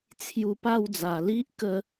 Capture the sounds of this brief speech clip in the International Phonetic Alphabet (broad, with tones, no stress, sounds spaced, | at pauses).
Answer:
t͡sʰ j u˧ p a˥˧ w d͡z a˨˩ l i˦ ʔ k ə˦